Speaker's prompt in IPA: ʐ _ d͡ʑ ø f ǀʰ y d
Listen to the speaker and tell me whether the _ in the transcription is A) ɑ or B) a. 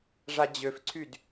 B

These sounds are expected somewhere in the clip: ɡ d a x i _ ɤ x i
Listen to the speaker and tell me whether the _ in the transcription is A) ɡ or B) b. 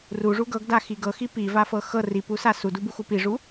A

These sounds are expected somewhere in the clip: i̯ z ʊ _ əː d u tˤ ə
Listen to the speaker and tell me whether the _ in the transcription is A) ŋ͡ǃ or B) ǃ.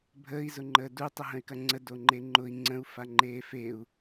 A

